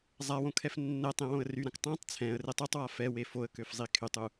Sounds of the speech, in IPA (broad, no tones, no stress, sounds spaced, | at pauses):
zˤ a w õ kʰ ɛ f nː ɛ tˤ ẽ w õ ə̯ r y ɾ ã k tˤ ã tˤ t͡sʰ ɛ̃ ə̯ r e tˤ u tˤ w a f ɛ w e f o ə̯ k ø f zˤ i kʰ y tˤ u